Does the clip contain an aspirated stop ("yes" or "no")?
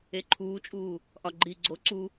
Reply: yes